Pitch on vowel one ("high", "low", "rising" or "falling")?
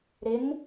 rising